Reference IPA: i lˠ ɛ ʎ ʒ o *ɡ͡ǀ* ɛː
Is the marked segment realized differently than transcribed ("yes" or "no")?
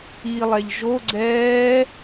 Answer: no